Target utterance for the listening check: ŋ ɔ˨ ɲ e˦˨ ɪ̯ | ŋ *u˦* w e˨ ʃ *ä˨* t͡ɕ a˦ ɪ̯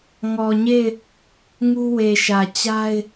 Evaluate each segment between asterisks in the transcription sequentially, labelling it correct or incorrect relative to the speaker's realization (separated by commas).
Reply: correct, correct